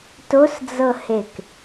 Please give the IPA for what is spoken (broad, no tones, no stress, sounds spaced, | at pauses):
t o s d͡z ɤ h e k